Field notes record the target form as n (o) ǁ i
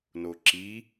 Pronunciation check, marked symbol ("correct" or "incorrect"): correct